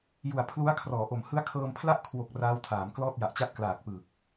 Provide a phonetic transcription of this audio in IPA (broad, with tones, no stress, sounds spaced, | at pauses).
j u˨˩ a̯ pʰ l u˦˥ a̯ kʰ r ɔː˩˦ ʔ o˨˩ m h ɯ˦˥ a̯ kʰ ɤː˧ m pʰ l a˥˩ ʔ kʰ w o˨˩ k̚ r aː˦˥ w tʰ aː˩˦ m k l ɔː˥˩ t̚ j a˨˩ ʔ t͡ɕ a˦˥ t̚ k l aː˨˩ k̚ p ɯː˨˩ k̚